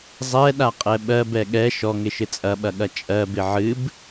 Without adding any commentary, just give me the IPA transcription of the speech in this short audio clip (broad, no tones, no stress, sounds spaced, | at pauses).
zˤ ɛ ɗ a qʼ ɛ ɓ ɜ b ɛ ɠ ɛ ʃ ɔ ŋ ɪ ʃ ɪ t͡sʼ ɐ ɓ ɐ ɠ ɐ t͡ʃʼ ɜ b ɪ ʕ ɨ b